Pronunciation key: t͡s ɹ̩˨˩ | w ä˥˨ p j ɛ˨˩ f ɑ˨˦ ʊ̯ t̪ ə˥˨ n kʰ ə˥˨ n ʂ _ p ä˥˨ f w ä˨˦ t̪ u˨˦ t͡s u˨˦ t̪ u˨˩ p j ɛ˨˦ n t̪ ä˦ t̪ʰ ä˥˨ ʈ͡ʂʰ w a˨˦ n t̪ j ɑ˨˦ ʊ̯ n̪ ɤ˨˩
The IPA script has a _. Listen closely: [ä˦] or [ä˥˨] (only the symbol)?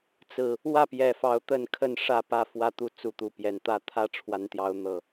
ä˥˨